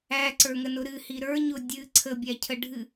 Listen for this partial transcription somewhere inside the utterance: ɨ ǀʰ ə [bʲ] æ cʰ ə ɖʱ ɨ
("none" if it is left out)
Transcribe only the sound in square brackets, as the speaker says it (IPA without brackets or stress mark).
bʲ